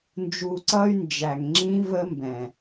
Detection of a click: present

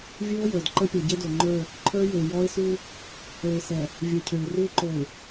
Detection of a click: present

